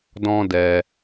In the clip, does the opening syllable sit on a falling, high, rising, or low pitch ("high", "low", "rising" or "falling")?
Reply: high